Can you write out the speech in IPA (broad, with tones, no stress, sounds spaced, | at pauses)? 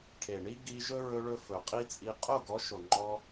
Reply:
ʈʰ e˨ ɳ i˦ ɡ i˧ ʒ ɵ˦ ɹ ɵ˧ ɭ ɵ˧ f ɵ˨ qʼ i˦ t͡sʼ i˧ qʼ o˦˨ ɡ ɔ˨˦ ʃ o˨ ŋ͡ǃ ɔ˧